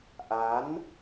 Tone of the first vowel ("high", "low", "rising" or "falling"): rising